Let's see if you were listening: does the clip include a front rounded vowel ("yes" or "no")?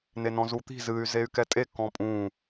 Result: yes